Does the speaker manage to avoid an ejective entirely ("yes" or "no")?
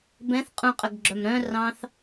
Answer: no